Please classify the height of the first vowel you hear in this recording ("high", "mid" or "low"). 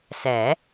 mid